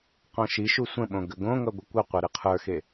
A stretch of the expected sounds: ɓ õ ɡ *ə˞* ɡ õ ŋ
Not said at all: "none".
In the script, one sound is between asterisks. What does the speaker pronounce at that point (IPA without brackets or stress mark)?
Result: ə